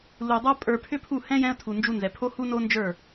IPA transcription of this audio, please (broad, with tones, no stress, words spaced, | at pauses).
lu˨dˤə˞˦ pʼə˞˧ pʰʏ˦pʰu˦˨ hɛ̃˦ jɛ̃˦ə̯tʰu˨nd͡ʒu˧nzɛ˨ pʰo˦hu˦no˦nd͡ʒə˞˦˨